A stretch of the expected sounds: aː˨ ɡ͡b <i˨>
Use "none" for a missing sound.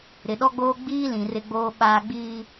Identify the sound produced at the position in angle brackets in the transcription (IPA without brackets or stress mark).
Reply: iː˨